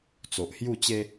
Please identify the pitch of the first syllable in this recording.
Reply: low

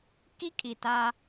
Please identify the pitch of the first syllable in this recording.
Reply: high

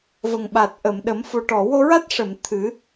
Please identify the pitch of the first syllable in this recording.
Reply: low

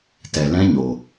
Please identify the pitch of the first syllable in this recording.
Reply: low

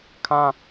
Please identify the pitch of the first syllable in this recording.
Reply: high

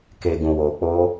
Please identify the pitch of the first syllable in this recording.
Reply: low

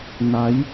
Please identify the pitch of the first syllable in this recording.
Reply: rising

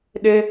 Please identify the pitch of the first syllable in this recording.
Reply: high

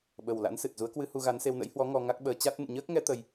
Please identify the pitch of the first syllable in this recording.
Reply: low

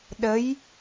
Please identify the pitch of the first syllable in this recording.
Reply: rising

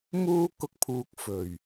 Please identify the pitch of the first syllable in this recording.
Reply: high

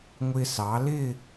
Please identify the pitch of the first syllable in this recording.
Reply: high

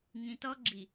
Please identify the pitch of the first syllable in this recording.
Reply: low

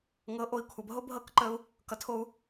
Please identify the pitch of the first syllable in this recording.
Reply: rising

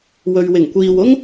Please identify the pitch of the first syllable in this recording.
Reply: low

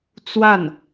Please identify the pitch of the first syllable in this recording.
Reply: falling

